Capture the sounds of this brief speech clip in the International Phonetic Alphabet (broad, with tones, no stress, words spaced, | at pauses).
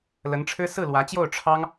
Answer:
lə˧˥nʈ͡ʂʰɻ̩˥ sɹ̩˥˩lwä˧˥t͡ɕjo˥˩ʊ̯ ʈ͡ʂʰɑ˥ŋ